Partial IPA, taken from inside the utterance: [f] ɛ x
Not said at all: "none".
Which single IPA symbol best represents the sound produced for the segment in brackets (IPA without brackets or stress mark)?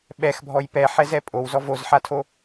ɓ